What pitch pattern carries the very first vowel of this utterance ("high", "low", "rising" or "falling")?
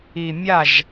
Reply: low